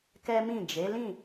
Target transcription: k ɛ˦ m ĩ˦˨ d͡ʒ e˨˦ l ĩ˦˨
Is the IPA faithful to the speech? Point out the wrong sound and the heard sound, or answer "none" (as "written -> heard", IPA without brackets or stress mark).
none